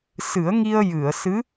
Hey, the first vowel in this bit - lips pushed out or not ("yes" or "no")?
no